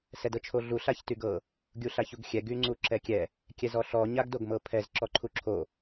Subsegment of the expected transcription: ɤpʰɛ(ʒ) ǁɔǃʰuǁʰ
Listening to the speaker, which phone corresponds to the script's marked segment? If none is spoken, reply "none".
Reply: z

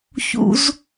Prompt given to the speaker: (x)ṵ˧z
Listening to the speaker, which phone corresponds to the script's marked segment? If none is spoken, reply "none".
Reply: ç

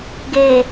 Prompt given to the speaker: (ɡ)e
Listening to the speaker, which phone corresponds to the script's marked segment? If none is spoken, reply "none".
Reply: ɡ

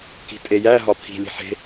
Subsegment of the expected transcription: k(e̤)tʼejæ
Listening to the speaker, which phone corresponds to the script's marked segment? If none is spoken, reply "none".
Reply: i̤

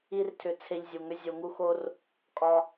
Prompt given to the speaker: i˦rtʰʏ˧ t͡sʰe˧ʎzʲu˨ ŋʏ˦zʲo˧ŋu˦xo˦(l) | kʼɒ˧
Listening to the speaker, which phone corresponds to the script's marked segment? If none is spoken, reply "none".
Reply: r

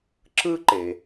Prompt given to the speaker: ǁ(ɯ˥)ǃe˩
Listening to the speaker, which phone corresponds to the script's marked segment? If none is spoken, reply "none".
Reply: ɯ˥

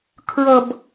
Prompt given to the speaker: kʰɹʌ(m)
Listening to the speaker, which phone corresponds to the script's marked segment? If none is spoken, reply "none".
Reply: b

